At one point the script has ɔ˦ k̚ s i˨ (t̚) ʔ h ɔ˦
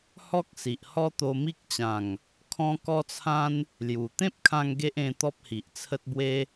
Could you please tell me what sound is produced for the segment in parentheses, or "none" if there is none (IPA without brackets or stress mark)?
none